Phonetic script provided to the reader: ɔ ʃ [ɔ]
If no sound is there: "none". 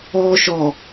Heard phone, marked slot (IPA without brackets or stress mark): ɔ